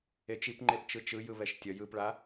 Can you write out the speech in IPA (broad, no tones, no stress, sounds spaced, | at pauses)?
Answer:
e t͡ʃ i p ŋ͡ǃ e p t͡ʃ ɯ t͡ʃ ɯ j ɯ β ɛ ʃ tʲ ʌ j ɯ p ɭ a